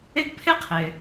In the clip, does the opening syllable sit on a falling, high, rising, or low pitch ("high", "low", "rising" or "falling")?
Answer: high